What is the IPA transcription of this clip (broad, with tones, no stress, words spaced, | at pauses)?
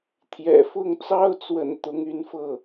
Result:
t̪ʰjɛ̰˨˩fʊ˥˩ŋt͡sɑ˥ʊ̯t͡swə̰˨˩n t̪ʊ˧˥ŋy˧˥nfɤ˥˩